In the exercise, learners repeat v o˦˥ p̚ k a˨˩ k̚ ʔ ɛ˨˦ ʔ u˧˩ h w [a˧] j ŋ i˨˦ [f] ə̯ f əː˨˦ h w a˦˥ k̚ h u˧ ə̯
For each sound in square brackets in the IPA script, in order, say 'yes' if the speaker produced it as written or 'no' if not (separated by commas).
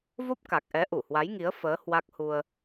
no, no